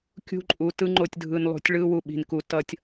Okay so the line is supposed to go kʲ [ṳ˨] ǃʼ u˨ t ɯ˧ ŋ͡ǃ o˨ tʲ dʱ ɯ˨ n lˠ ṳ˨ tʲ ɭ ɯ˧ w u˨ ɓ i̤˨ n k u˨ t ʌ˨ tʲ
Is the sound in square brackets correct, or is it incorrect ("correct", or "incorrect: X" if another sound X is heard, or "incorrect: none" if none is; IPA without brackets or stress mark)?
incorrect: ṳ˧